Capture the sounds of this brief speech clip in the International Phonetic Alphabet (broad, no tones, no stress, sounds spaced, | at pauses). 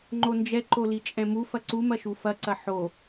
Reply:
ŋ͡ǃ o n d͡ʒ ɛ ǃ o l i t͡ʃʼ ɛ̃ m u f ɐ ǀ u m ɐ ʃ u f ɐ ǀ ɐ ħ o